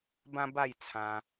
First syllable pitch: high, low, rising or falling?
high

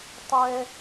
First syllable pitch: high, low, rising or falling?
high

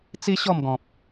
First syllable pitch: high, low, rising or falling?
high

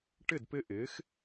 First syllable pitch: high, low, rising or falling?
falling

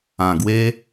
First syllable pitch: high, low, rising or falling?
low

